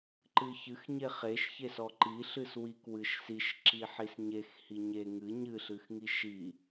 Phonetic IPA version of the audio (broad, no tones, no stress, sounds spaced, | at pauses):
ǃ ɨ ç ɨ x ɲ e χ e ʃ ç e s ɔ ǃ i ɬ ɨ s w i k w ɨ ʃ s i ʃ ǁ i ħ i s ɲ e x h i ɲ e ŋ ɨ ɲ ɨ ɬ ɨ x ŋ i ʃ i